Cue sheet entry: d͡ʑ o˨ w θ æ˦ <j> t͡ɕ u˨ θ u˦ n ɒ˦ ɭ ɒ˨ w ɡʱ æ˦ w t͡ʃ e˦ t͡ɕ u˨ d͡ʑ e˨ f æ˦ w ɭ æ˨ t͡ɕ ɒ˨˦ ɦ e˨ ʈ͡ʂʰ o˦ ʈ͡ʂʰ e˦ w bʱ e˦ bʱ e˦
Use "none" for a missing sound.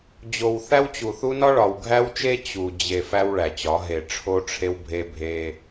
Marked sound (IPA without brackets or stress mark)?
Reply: w